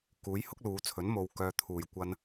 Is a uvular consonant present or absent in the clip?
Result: absent